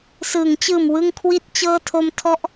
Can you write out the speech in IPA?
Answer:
s ɯː˩˦ ŋ t͡ɕ ɯː˨˩ m w ɯ˧ ŋ kʰ w i˥˩ t̚ t͡ɕ ɤː˥˩ tʰ o˧ m tʰ ɔ˦˥ ʔ

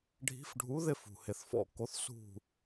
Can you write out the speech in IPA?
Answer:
ɖʱ i̤˨˥ f ɖʱ u˨˥ ð ɪ˦˨ f ṳ˩ h ɪ˩ θ f ɔ̰˦˨ k o˨˥ θ s ṳ˦˨

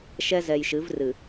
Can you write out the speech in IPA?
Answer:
ʃ ɛ˦ z ɛ˨ j ʃ ɨ˨˦ v r ɨ˨

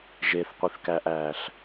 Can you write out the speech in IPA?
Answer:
ʒ e θ qʷ i θ k æ ʔ æː ɬ

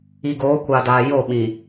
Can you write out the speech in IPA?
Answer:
i˨ ɡ oː˨˦ kʷ a˨ d aː˨ j o˦˨ ɓ ĩ˨

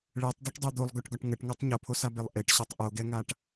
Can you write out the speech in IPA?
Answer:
ɭ ɛ tˤ d œ ʈ dˤ e d̪ o lˠ ɡ œ ʈ ɡ ɒ ʈ ŋ ə ʈ ŋ o tˤ ɲ o pʰ o s a b e lˠ ʔ e ʈ ɕ o tˤ ʔ o ɡ ɛ ŋ a ʈ

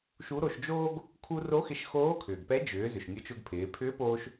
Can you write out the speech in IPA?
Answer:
ʃ u˧˥ ɾ o˧ ʃ d͡ʒ oː˥ ɡ | kʰ u˧ r o˧˥ x ɪ˧ ʃ x oː˧˥ kʰ ʏː˩ ɡ p ɛ˧˥ d͡ʒ ʏː˩˧ z ʏ˩ ʃ nʲ ʊ˧˥ t͡ʃ ʊ˧ ɡ pʰ ɪː˩˧ pʰ ʏː˧˥ p oː˧ ʃ

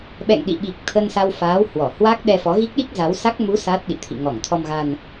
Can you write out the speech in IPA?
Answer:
ɓ ɛ̰˧˨ ŋ ɗ ḭ˧˨ ɓ i˨˩ k̚ t̪ʰ ə˧ n s a˧ w f aː˨˦ w h w ɔ˧˩ h w a˦˥ k̚ ɗ ɛ˧ f ɔ˨˦ ɣ i˦˥ k̚ ɗ i˦˥ k̚ z a˨˦ w s a˦˥ k̚ m u˨˦ s a˦˥ t̚ ɗ ḭ˧˨ t̪ʰ ḭ˧˨ ŋ ɔ˧˩ ŋ t̪ʰ ɔ˧ m ɣ a˧ n

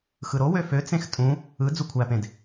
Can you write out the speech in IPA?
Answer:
x ɯ ɾ o w ø f ø t͡s ẽ x tʼ ũ | ɯ d͡z u kʷʰ æ p ẽ d

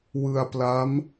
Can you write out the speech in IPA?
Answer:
w ɯ˧ a̯ p l a˦˥ m

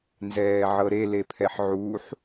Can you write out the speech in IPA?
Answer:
n z ɛː ʕ ɤ ɾ e l e pʰ ɛ ħ ʕ uː ħ

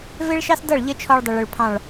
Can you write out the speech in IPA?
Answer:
v ɪ˦ ɭ ʃ ɑ˦ s d ʌ˦˨ ɭ ʎ ə˦ t͡ʃʰ ɔ˧ ɭ dˤ ə˨ ɭ ʊ˨ ɭ pʰ ɑ̃˦˨ ɭ

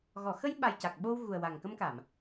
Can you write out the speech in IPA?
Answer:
ɣ ɔ˨˩˨ x ə˧ j ɓ a˨˩ j c a˨˩ k̚ ɓ o˧ w ɣ u˨˩ ə̯ w a˨˩ ŋ k ə˧ m k a˨˩˨ m

